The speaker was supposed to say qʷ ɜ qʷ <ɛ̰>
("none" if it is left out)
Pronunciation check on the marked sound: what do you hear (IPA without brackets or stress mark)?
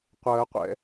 ɛ̰